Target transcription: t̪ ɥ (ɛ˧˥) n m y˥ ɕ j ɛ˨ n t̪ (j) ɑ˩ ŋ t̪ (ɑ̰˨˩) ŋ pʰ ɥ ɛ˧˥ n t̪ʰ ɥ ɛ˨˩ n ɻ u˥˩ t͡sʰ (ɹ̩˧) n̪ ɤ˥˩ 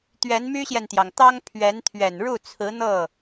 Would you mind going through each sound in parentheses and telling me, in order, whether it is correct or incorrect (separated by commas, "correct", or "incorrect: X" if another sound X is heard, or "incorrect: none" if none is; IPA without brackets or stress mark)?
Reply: correct, correct, incorrect: ɑ˥, incorrect: ɹ̩˧˥